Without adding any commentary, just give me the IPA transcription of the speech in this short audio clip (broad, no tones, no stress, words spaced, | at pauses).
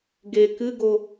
ɡe kɨɡo